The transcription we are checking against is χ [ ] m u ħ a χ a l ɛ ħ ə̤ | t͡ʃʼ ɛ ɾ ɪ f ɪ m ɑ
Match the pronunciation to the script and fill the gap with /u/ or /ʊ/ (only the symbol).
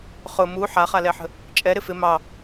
ʊ